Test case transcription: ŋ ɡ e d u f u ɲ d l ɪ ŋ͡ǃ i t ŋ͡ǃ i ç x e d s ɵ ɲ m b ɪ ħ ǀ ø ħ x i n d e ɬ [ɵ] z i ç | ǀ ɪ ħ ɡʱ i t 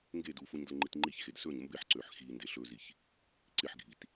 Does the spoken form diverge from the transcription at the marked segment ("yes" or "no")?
no